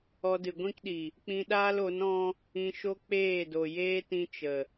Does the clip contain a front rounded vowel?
no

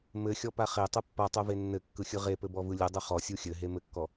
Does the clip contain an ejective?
no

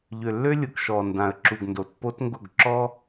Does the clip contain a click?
yes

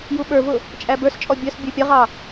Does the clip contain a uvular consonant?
yes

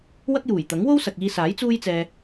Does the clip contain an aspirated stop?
no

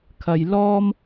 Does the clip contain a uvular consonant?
no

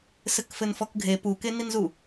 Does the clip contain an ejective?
no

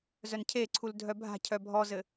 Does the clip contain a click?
yes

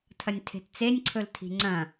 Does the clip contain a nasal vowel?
yes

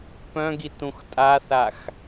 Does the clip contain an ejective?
yes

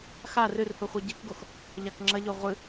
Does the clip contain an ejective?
no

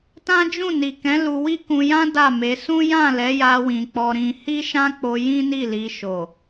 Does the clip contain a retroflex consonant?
no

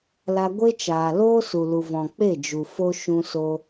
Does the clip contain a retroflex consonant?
no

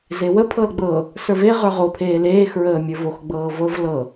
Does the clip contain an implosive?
no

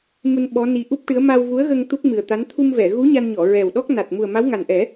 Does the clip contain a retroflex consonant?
yes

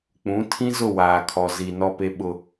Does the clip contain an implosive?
yes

